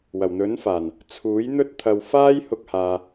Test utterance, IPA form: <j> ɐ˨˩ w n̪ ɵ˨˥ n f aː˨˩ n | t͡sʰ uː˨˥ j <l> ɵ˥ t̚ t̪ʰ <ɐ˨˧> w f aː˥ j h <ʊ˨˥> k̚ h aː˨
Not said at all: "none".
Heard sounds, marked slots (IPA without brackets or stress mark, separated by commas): w, n̪, ɐ˧, ʊ˧